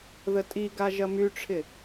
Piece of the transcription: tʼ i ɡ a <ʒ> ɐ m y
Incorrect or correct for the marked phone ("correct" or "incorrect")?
correct